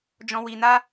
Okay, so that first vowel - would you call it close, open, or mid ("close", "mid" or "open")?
mid